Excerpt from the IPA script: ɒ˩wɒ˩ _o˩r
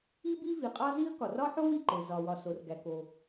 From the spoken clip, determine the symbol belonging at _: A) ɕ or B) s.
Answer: B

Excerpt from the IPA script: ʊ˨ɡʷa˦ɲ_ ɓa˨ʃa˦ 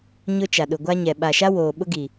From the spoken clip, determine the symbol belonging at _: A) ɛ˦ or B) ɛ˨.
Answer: B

